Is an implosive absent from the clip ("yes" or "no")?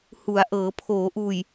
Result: yes